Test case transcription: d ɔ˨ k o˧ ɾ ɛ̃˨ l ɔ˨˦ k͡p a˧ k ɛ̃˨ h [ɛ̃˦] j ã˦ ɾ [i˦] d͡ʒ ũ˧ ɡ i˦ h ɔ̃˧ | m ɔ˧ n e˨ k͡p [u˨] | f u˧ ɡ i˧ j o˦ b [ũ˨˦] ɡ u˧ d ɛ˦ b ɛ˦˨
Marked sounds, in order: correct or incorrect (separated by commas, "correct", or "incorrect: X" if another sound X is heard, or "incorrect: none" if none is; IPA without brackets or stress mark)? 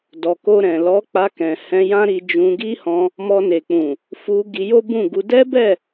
incorrect: ɛ̃˧, incorrect: i˧, incorrect: ũ˨, incorrect: ũ˦˨